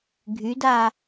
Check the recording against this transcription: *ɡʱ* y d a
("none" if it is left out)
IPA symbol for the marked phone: ɡʱ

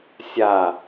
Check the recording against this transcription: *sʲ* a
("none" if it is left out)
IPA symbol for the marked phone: sʲ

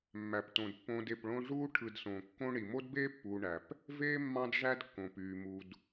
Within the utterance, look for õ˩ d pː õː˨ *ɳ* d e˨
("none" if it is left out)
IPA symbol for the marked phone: none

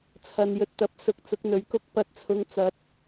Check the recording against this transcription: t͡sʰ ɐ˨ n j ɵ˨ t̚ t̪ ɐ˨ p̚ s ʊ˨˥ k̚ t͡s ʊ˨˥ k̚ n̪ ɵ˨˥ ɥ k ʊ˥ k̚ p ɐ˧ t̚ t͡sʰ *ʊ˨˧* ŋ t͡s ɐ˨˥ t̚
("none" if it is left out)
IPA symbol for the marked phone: ʊ˨˧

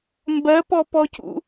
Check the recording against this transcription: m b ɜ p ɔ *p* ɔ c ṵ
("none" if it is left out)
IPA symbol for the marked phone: p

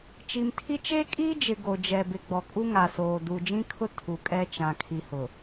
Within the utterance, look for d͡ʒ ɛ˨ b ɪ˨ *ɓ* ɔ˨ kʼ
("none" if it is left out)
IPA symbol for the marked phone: ɡ͡b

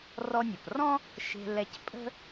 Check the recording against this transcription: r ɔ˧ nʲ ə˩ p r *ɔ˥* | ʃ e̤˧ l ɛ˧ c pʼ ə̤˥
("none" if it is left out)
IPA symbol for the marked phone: ɔ̃˥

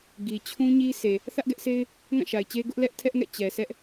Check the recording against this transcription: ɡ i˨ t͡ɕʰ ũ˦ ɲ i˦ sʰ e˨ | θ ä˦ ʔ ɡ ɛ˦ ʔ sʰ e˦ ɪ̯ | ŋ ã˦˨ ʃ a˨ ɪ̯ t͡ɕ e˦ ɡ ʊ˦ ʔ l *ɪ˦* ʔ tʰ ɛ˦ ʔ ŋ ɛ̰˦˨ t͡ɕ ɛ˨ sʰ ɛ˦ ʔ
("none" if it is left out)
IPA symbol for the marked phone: ɛ˦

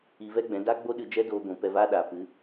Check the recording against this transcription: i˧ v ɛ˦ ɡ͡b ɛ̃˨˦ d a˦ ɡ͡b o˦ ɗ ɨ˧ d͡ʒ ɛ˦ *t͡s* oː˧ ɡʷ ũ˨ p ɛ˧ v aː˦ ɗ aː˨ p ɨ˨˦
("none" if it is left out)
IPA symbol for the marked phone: d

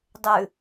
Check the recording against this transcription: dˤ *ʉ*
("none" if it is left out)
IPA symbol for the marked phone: ʉ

